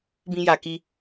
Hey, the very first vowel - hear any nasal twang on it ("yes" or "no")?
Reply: yes